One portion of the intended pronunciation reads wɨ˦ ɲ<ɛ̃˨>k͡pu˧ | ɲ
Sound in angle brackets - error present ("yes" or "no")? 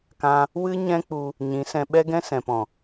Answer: yes